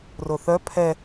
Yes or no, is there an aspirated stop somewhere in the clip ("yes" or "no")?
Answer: yes